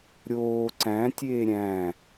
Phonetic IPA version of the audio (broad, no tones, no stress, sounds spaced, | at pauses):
ɾʲ oː ǀ æ̃ tʲ eː ɾʲ æ̃